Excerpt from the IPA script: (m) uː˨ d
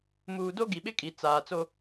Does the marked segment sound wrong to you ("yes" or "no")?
no